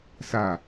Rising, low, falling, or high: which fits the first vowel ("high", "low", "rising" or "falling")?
falling